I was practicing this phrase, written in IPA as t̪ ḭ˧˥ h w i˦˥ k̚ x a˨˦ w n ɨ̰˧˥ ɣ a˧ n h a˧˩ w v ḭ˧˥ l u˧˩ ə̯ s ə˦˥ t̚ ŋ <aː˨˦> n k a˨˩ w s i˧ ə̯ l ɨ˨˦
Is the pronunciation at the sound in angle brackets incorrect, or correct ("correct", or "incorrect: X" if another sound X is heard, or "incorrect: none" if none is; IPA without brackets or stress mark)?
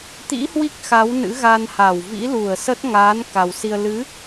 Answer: correct